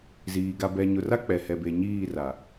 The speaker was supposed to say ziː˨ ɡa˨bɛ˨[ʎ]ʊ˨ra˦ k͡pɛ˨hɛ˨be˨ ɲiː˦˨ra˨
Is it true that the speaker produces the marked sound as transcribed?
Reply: no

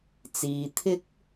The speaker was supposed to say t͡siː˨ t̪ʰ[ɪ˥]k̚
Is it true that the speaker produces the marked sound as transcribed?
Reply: yes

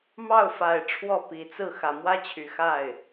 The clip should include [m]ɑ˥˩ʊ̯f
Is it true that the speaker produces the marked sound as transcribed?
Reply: yes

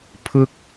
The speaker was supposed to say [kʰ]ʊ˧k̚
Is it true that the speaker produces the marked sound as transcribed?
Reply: no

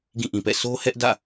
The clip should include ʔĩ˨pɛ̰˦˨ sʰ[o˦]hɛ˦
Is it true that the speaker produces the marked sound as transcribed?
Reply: yes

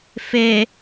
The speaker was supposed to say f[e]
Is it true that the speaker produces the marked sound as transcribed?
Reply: yes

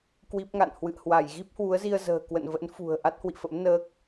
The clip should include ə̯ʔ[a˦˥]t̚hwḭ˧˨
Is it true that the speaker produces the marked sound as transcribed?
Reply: yes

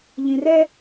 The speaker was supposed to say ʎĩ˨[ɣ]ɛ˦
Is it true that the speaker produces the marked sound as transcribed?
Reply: no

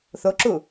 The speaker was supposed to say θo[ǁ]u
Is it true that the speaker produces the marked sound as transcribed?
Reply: yes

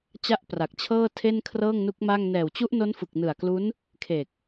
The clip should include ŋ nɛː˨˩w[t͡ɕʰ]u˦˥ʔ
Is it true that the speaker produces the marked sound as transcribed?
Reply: no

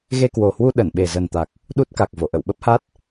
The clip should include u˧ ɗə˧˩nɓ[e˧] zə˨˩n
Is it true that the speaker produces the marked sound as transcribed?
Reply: no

